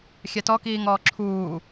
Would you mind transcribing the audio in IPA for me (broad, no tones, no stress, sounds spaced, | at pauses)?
xʲ ɛ t ɔ k iː ŋ ɔː ǁʰ uː